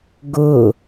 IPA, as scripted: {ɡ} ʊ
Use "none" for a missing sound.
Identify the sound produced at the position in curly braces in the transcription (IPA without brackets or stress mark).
ɡ